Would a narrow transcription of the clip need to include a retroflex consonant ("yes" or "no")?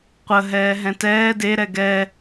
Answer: no